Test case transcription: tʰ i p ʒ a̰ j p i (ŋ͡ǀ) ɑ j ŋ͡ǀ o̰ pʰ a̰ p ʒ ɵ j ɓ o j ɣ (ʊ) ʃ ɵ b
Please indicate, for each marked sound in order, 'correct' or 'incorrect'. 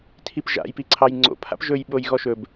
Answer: incorrect, incorrect

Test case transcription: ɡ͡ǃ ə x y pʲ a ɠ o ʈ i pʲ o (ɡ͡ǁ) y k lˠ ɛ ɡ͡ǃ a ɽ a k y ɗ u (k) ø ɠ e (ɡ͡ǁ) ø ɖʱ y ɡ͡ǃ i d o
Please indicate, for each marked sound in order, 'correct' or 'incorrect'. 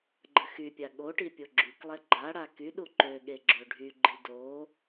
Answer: correct, incorrect, correct

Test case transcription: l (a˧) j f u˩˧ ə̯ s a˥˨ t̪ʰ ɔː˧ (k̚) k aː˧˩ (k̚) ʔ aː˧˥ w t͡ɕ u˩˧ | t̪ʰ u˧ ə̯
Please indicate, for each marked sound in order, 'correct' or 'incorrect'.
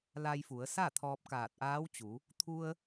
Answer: correct, incorrect, incorrect

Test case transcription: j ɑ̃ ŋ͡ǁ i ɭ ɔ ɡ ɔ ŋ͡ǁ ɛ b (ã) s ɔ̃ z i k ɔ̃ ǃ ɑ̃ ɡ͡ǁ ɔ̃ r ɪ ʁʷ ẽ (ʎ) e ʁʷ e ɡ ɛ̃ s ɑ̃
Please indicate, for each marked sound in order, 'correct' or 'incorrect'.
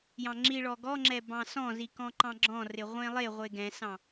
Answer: incorrect, incorrect

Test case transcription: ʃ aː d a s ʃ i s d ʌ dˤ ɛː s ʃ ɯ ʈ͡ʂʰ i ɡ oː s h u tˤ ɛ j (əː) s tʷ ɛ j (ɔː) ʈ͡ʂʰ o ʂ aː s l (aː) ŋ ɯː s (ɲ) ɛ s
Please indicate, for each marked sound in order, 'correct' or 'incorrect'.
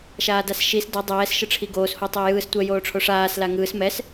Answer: incorrect, incorrect, incorrect, incorrect

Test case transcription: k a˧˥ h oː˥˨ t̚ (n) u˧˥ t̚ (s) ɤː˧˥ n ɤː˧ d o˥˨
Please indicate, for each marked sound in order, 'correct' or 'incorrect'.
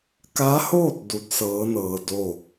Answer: incorrect, correct

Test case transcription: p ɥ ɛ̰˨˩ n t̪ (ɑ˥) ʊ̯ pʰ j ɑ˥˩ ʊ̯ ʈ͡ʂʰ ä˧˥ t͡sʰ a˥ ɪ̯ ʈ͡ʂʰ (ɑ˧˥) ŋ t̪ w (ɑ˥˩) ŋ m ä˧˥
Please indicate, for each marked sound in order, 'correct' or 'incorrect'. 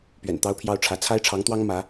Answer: correct, correct, incorrect

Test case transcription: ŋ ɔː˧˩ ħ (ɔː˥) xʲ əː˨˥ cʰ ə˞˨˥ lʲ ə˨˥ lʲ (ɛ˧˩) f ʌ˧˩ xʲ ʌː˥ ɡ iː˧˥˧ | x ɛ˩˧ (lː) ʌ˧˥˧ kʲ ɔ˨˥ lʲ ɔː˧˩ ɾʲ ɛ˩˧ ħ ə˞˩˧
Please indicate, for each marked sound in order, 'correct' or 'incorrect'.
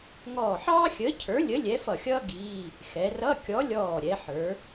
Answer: incorrect, incorrect, incorrect

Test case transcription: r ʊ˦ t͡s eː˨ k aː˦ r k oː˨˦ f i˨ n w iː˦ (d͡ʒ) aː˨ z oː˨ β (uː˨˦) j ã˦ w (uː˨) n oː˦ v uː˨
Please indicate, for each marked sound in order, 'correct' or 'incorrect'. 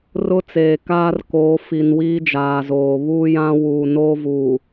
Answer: correct, incorrect, correct

